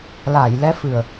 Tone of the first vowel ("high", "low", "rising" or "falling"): low